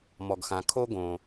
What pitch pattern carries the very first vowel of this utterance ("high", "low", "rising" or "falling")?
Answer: low